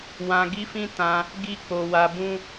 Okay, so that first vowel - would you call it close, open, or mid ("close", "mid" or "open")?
open